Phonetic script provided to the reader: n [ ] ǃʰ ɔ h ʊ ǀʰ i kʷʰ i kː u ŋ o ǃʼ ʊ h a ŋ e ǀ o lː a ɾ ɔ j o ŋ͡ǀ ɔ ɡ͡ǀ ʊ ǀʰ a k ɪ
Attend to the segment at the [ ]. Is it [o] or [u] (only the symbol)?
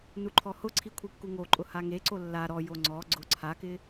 u